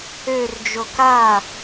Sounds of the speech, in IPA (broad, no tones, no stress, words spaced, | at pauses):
ørd͡ʒo ka